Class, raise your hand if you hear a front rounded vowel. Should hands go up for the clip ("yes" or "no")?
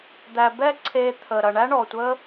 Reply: no